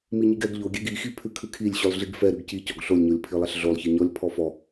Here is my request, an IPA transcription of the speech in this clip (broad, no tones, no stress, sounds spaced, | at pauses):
m i ɲ i ɡ ɛ ɡ ʎ o ɡʲ ɛ ɡ i x i pʰ ʉ kʰ ʉ kʰ i lʲ ɕ ʉ lˠ ɮ i ɡ f ɛ ɾ ʉ ɡ c i c ɔ ɡ ɬ o lʲ ɲ o lʲ pʰ i lˠ ɛ ɬ ɮ o lˠ ç i ɲ ɔ lʲ pʰ ɔ f ɔ